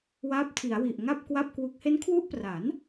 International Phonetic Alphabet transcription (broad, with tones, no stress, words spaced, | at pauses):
waː˦˥p̚tʰi˩˦a̯wi˨˩ʔŋa˥˩p̚ kwa˥˩p̚kwu˦˥k̚ he˦˥nkʰwu˦˥ʔpra˩˦n